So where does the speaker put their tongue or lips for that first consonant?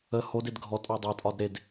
throat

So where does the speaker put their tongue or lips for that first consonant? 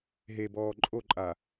throat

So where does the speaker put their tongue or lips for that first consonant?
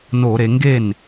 tongue tip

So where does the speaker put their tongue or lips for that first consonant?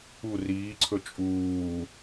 tongue tip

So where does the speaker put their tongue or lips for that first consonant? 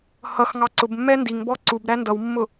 throat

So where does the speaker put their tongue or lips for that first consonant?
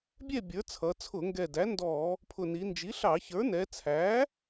lips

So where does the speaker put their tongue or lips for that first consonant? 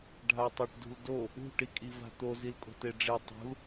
retroflex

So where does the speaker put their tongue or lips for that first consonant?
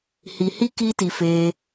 throat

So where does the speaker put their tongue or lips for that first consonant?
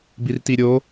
lips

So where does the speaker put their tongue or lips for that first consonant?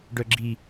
retroflex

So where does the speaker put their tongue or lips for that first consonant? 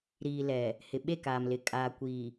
tongue tip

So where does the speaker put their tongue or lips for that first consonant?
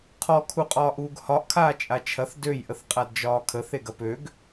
uvula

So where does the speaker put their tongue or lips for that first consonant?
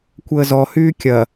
velum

